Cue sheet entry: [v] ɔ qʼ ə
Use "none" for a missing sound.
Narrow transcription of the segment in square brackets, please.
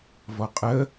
v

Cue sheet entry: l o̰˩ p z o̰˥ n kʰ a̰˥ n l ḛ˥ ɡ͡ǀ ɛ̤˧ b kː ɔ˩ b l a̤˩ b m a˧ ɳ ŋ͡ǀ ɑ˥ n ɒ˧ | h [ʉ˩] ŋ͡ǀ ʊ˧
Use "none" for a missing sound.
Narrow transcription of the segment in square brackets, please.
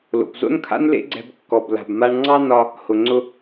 ʊ˩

